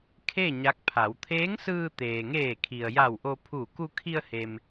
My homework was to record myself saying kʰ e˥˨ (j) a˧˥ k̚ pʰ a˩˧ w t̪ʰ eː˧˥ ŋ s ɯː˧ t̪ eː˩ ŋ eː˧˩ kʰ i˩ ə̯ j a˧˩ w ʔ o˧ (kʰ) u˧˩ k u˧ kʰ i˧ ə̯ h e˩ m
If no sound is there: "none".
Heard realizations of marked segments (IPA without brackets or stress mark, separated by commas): ɲ, pʰ